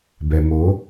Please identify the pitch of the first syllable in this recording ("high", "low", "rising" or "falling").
low